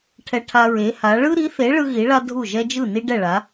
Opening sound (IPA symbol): ʈʰ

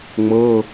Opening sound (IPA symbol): ŋ͡m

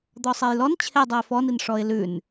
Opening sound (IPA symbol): d̪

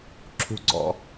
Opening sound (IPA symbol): ǁʰ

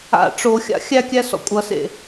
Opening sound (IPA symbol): a̰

